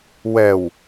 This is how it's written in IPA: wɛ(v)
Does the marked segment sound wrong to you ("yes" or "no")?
yes